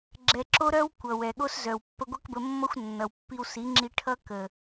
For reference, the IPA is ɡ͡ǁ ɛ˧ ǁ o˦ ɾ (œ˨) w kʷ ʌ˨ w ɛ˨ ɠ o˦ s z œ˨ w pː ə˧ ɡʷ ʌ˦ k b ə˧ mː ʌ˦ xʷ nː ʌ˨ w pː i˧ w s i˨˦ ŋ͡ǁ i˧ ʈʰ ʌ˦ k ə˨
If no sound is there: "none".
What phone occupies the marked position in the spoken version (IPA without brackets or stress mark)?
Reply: œ˦